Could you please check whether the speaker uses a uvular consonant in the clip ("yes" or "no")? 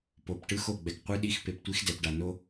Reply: yes